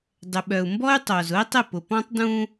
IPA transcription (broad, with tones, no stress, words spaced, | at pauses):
dˤʏ˨ɓœ˨u̯ mbɔ˦y̯tˤo˨zʊ˦i̯tˤɪ˦˨ pʊ˨pɔ̃˦tˤ dũ˦